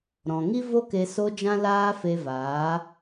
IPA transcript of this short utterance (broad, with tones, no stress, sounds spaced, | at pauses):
ɾ ɔ̃˨ ŋ i˦ v o˦ k e˧ s o˧ d͡ʒ ã˦ l aː˦ f e˧ v aː˨˦